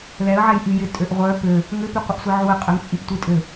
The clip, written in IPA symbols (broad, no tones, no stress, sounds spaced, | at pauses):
l ɛ ə̯ ʕ ɛ j ʔ y j ɪ tʼ ø ʔ ʁʷ œ p ø | ŋ ʏ p y qʷ ɪ ʔ sʷ i ʕ u ə̯ qʼ ə ŋ t͡sʼ i p tʷ i tʼ ʏ l